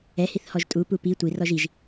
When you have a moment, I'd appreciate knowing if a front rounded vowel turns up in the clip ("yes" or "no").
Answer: no